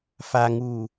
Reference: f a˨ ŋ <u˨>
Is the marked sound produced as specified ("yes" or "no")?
no